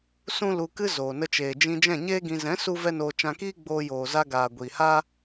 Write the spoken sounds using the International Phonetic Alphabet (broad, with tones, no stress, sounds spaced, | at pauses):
s ũ˦ l u˧ k ɨ˦ z oː˨ n ə˧ t͡ʃ eː˨ d͡ʒ ĩ˧ d͡ʒ ɛ̃˦˨ ɲ eː˦ ɡ ĩ˧ z ɛ̃˨˦ s u˧ v ɛ˦ n oː˧ t͡ʃ ã˧ k iː˦ ɡ͡b oː˧ j oː˨ z a˧ ɡ aː˨ ɡʷ iː˨ h aː˦